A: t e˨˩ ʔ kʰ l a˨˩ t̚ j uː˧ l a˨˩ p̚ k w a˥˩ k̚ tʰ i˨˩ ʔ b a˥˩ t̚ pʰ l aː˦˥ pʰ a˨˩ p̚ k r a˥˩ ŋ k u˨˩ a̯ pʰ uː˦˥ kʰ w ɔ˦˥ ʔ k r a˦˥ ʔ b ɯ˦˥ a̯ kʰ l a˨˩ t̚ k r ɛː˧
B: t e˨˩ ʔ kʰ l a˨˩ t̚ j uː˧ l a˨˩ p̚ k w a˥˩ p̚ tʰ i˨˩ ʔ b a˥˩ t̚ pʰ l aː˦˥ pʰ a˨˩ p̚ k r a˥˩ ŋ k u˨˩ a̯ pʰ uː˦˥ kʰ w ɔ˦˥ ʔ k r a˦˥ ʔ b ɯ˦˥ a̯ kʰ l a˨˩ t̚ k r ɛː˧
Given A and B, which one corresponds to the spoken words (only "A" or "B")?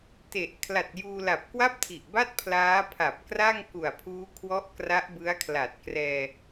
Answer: B